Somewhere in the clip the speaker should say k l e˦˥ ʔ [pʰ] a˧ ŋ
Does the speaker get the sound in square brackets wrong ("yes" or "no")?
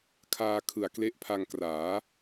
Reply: no